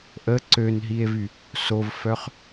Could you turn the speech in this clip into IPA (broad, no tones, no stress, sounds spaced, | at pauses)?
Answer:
ʔ ə ǀ ø n ɦ i e̯ v y | s o v f œ χ